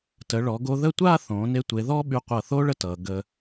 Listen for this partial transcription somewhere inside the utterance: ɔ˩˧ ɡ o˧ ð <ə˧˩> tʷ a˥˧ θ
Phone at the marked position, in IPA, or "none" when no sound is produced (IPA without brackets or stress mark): ə˥˧